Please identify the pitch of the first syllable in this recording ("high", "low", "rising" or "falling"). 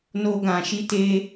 high